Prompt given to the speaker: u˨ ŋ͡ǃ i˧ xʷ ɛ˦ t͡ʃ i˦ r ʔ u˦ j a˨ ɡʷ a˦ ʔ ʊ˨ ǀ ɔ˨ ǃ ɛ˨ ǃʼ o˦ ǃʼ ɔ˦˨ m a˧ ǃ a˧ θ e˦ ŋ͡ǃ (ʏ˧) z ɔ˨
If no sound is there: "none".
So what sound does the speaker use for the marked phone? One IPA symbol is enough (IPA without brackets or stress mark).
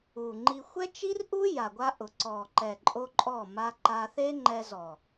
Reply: ɛ˧